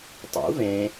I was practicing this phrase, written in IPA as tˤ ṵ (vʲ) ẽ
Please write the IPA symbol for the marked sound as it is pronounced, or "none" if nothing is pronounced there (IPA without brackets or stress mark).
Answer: v